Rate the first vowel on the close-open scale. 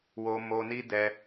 mid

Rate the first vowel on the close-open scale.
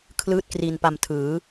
close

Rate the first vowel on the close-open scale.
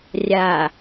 open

